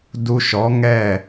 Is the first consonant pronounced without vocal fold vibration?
no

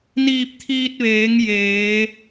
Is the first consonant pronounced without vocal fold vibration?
no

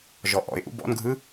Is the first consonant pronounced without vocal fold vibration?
no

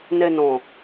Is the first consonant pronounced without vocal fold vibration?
no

